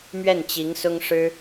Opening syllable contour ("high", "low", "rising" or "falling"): falling